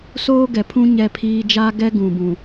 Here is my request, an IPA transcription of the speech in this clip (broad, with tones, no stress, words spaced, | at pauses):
soː˦ɡɛ˨pʰũ˦ ɲɛ˦pʰiː˦ d͡ʒaː˦ɡɛ˦ ɡũ˨bũ˨